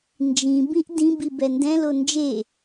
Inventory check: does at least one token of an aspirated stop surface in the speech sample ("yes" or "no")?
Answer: no